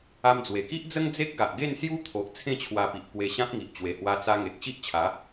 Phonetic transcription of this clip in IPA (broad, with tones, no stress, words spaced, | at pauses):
a˧md͡zwe˨˩ki˦ʔd͡zə˦ŋ d͡ze˦k̚ɡa˨ʔɡe˥˧n sju˦t̪ʰo˨ʔ t͡sʰẽ˥˧t͡ɕʰwa˧pi˨ʔ kwe˧ɕã˦p̚ŋi˨ʔ t͡ɕwe˨˩hwa˧t͡sa˧ŋe˨k̚ ɕi˦ʔt͡ɕʰa˨˦